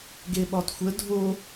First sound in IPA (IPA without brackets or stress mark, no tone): ɡ